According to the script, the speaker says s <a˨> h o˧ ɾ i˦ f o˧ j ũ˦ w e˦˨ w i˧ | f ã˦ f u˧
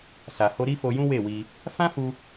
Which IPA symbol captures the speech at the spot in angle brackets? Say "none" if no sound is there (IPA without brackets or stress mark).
a˨